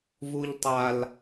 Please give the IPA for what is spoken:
vuʎtˤal

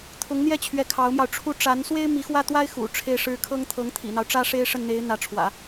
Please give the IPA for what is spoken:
t̪ʰʊ˧˥ŋn̪jɛ˥˩t͡ɕʰɥɛ˧˥ kʰɑ˧˥ʊ̯mjɑ˧ʊ̯ ʈ͡ʂʰu˥˩ ʈ͡ʂa˧˥n swe˥ɪ̯mi˧˥xwä˥˩t̪wa˥ɪ̯ xṵ˨˩ʈ͡ʂʰe˥ɪ̯ʂɻ̩˥ kʰɤ˥ŋt̪ʰɤ˧˥ŋt̪ʰḭ˨˩n̪ɑ˦ʊ̯ ʈ͡ʂä˥ ʂe˥ɪ̯ʂə˥˩nn̪e˧˥ɪ̯ n̪ä˧˥ʈ͡ʂʰwä̰˨˩˦

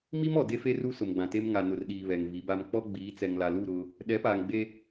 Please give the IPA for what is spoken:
mi˦mɔ˨ de˦fe˦ ru˦sʊ˨mɡ͡bã˨te˦m ŋa˨nʊ˨rɗiː˨ βɛ˨ŋvi˨˦ba˦m k͡pɔ˦ ɡ͡biː˨˦t͡sɛ˨ŋla˨lu˦˨ ɾʊ˦ | ɗɛ˨˦paː˨ŋɡ͡be˦

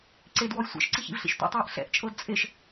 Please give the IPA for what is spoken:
ǀedwɔj sʷɛ̰ʃǀi çḭvɬḭʃtʷḛtˤɤːʔ ɬɛ̰ʔt͡ʃʼɤd t͡sʼeʃ

